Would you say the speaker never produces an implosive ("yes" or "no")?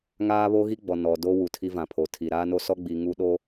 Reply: no